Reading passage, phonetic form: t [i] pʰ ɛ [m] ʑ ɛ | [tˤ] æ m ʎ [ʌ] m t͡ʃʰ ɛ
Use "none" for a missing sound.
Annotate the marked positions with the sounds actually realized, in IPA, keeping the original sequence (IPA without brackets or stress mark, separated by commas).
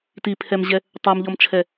i, m, tˤ, ɔ